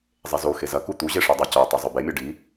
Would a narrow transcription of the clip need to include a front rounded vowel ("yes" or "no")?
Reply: no